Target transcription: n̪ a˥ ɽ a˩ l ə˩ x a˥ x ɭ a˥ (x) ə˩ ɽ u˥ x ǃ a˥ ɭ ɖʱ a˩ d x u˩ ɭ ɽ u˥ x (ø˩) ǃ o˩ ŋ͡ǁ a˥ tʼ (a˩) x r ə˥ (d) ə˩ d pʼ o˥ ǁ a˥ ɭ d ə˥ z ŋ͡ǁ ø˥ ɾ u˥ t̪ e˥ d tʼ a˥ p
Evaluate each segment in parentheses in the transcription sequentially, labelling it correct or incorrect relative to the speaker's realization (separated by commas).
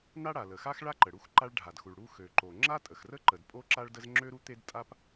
incorrect, correct, incorrect, incorrect